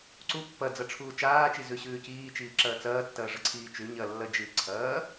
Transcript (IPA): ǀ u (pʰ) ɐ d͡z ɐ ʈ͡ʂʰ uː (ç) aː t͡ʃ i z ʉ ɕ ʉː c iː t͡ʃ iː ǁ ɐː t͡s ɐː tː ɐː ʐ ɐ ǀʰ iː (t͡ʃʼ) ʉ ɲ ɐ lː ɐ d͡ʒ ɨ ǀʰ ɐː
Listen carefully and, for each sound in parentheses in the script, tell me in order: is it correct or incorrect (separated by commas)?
incorrect, incorrect, incorrect